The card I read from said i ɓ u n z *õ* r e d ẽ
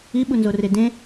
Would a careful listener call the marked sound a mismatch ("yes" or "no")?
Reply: yes